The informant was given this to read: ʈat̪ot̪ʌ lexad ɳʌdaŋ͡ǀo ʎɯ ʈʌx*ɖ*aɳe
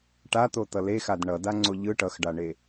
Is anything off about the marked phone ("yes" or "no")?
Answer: no